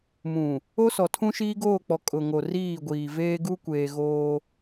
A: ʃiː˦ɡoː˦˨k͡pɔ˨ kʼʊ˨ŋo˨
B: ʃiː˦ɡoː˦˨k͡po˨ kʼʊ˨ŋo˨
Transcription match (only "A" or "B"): A